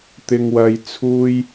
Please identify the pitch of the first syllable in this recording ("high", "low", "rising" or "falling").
high